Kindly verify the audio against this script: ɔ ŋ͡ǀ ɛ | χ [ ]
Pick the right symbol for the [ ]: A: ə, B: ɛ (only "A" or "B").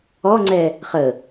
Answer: A